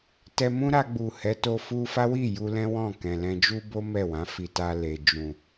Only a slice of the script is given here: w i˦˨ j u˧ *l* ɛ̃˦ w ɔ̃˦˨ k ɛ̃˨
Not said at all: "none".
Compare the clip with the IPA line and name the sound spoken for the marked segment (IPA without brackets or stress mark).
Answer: l